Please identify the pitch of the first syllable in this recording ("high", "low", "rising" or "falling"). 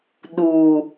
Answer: low